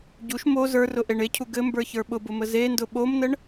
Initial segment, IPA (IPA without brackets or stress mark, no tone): ɟ